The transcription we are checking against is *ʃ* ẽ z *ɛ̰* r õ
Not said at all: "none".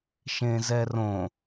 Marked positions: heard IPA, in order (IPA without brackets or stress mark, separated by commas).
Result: ʃ, ɛ